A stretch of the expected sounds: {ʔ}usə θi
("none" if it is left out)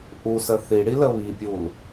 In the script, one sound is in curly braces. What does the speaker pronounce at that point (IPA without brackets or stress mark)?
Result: ʔ